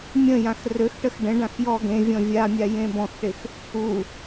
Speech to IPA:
mʲ ə̃ j ã x r ø x ʈ ə x ɖ ə̃ ɖ ã x j ɔ ɡ ẽ vʲ ɔ̃ vʲ a mʲ a j ẽ b ɔ̃ x ʈ ɪ x | u

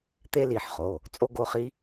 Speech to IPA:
t̪ e˥ l i˩˧˩ ħ χ o˩˧˩ | t͡sʼ o˥ ɡ o˧˥˧ χ i˥

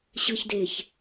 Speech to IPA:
ɕ ɯ˨ ç d e˨ ç

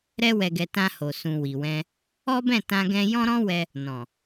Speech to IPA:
ɾ ɛ˧ w ɛ˨ ɡ ɛ˨ t ã˧ h o˨ s ũ˨ w i˨ w ɛ̃˧ | ɔ˦ b ɛ̃˦˨ t ã˧ ɡ ɛ̃˧ j ɔ̃˦ ɾ ɔ̃˦ w ɛ˧ | n ɔ̃˨

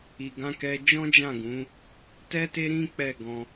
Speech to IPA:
i˨ ɡ ã˧ k ɛ˧ d͡ʒ ɔ̃˦ d͡ʒ ã˦˨ ɡ ũ˨˦ | t ɛ˦ t e˦ ɾ ĩ˦ k͡p ɛ˦˨ ɡ ɔ̃˧

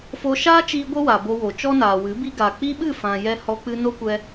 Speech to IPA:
f o˧ ʃ aː˦ t͡ʃ iː˧ ɡʷ ə˦ w a˨ b o˧ w o˨ t͡ʃ ɔ˦ n aː˨ w ɨ˨˦ b i˦ ɡ a˨ k͡p i˦ ɓ ɨ˦˨ f ã˨ j ɛ˧ h ɔ˧ k͡p ɨ˧ n o˦ kʷ ɛ˧

